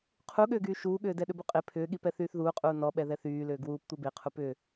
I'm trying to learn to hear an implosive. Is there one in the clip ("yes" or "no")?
yes